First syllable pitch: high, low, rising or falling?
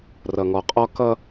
low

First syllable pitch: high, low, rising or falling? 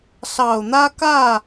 low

